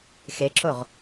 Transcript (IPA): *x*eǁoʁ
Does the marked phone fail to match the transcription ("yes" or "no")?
no